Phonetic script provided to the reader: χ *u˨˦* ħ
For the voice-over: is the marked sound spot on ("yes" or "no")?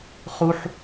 no